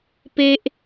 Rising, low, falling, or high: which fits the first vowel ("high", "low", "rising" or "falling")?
high